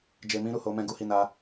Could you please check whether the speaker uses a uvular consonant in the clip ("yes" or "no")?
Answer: no